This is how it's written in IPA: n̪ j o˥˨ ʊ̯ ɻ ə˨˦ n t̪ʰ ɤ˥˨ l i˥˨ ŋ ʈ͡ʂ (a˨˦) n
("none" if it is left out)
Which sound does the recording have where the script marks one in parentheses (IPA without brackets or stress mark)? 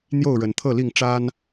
a˦